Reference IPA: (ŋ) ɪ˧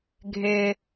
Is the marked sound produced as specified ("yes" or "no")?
no